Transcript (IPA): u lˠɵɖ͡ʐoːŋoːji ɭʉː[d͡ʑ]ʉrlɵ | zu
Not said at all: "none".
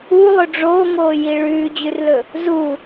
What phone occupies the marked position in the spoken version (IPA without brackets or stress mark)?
d͡ʑ